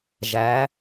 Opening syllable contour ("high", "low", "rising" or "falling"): rising